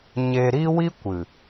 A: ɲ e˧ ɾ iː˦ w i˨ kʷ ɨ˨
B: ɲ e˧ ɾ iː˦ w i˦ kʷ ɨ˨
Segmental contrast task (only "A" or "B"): B